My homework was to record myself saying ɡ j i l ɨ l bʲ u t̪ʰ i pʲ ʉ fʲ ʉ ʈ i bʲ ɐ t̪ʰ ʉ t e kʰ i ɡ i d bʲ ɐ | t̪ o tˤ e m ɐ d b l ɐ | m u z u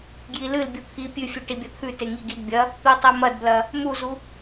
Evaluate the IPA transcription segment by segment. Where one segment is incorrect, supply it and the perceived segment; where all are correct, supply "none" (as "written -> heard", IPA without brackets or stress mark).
kʰ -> ŋ